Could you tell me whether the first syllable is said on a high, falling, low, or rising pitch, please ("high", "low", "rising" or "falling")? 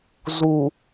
low